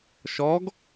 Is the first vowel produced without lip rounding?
no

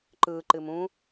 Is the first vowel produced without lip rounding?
yes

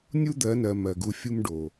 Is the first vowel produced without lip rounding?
no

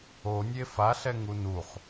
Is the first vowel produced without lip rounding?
no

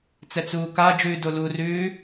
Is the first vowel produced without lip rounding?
yes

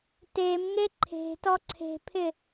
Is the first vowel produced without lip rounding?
yes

